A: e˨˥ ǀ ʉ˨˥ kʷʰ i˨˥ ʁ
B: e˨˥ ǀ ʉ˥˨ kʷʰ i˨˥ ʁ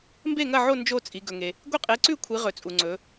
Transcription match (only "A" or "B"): B